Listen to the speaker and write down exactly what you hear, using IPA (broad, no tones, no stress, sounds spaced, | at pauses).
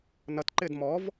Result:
n ʌ t ǃ ɪː d m ɔ v